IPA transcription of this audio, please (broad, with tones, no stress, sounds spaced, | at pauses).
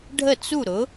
ɖʱ ə˥˩ t͡s u˥˩ ɾ ʊ˩˥